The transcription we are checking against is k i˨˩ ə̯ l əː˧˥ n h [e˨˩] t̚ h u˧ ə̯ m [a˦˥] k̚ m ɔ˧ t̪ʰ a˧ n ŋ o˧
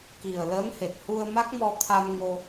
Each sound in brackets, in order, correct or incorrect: correct, correct

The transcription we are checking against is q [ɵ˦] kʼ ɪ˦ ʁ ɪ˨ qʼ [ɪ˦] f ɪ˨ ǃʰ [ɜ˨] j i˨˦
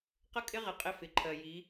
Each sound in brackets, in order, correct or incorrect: incorrect: ə˦, correct, correct

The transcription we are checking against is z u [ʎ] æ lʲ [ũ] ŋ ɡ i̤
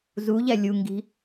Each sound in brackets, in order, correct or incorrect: correct, incorrect: u

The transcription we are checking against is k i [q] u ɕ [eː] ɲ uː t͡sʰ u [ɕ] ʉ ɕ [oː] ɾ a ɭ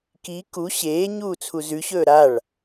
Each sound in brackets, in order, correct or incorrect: incorrect: k, correct, incorrect: z, incorrect: ɵː

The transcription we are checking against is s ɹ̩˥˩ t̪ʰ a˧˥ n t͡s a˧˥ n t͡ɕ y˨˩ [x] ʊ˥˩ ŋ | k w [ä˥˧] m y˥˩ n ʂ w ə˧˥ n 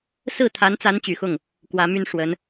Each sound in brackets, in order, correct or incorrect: correct, incorrect: ä˧˥

